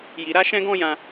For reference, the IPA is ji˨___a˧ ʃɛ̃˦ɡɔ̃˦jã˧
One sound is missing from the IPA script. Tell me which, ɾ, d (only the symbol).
ɾ